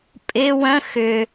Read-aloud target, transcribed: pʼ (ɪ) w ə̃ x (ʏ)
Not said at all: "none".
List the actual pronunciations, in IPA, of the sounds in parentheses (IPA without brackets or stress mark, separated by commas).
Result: ɪ, ʏ